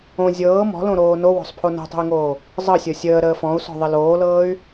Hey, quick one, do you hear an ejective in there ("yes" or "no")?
no